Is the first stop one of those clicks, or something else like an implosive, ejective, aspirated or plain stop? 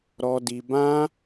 plain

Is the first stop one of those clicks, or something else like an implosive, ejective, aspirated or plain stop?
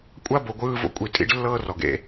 ejective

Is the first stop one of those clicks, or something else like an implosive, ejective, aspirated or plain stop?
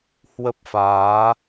plain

